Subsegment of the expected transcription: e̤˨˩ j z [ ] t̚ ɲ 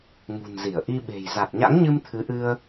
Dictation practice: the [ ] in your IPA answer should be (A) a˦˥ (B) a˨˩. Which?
B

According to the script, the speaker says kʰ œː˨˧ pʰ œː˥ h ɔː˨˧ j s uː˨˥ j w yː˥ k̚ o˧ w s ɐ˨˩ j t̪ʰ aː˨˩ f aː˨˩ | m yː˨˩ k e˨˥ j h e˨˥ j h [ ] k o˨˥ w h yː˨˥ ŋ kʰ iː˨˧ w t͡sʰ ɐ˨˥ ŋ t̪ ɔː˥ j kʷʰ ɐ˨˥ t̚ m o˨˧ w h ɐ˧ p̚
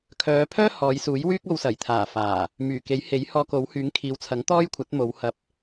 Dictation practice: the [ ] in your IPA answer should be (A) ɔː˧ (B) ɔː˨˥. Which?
A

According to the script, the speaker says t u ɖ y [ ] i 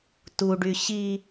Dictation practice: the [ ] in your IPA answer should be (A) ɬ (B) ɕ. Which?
B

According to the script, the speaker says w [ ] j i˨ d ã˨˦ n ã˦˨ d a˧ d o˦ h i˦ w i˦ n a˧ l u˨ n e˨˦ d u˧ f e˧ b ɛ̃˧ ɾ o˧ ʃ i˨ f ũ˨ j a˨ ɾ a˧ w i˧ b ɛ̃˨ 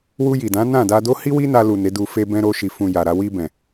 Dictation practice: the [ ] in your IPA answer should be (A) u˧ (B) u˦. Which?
A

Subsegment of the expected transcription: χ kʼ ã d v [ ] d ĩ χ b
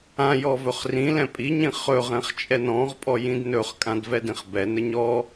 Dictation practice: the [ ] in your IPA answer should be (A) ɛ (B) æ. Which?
A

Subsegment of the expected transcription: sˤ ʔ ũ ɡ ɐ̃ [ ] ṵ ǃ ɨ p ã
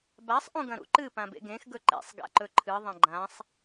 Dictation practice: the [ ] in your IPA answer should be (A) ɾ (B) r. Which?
A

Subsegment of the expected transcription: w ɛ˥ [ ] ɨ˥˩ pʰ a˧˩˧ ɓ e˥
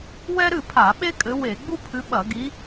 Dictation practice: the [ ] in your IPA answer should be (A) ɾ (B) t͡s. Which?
A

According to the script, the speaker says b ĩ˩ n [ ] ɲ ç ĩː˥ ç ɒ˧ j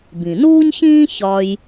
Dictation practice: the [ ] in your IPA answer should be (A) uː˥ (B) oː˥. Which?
A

